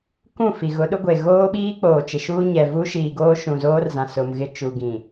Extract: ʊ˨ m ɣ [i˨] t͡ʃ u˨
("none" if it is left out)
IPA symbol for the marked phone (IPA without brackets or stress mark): ɪ˨